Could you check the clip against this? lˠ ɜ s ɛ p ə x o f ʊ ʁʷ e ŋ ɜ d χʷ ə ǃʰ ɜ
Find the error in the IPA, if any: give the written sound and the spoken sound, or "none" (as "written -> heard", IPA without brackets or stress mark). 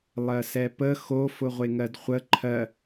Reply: none